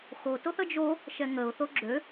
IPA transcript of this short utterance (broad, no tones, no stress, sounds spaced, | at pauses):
x o t o θ ə d͡ʒ o | ʃ ɛ ŋ ə ʊ̯ θ o ɡ͡ǁ ø